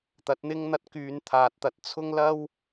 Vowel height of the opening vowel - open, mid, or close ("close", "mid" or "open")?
open